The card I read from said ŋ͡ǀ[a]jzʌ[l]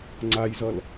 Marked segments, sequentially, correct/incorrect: correct, correct

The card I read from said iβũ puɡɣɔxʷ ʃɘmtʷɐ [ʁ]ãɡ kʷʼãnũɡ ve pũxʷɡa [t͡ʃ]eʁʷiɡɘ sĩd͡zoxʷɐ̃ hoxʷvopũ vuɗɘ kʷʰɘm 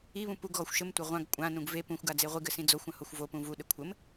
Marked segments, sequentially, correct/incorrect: incorrect: ʁʷ, incorrect: d͡z

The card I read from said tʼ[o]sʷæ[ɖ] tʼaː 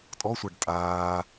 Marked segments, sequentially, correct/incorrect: incorrect: ɔ, correct

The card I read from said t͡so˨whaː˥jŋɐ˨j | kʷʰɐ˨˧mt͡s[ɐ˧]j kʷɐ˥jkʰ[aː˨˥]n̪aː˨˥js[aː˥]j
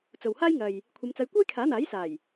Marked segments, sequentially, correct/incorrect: correct, correct, incorrect: aː˨˩

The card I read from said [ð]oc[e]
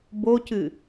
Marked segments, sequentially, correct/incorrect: incorrect: b, incorrect: ɨ

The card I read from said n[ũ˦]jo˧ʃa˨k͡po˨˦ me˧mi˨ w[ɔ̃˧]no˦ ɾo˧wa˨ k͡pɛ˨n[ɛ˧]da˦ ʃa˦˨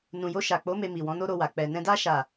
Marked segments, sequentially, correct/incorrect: incorrect: ũ˨, incorrect: ɔ̃˨˦, incorrect: ɛ̃˧

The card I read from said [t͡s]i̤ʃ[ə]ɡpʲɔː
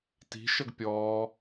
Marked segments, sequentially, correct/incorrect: incorrect: t, correct

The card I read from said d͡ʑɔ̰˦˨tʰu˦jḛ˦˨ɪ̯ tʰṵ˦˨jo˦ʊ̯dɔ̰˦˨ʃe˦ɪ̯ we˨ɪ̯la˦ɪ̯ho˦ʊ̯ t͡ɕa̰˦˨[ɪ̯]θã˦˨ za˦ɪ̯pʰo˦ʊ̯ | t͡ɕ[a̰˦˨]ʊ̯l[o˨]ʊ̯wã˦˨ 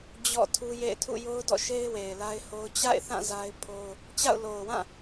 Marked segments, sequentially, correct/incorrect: correct, correct, correct

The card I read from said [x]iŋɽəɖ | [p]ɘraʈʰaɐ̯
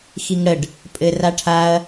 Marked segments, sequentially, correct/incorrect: correct, incorrect: pʼ

